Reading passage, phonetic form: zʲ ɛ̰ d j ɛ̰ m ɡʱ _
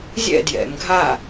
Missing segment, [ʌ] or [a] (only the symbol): a